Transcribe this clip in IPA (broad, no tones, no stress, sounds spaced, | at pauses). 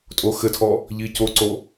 tʼ o x ɘ tʰ ɔ | ʎ i c o ǀ o